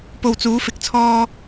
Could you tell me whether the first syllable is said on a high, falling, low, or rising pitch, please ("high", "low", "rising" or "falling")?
low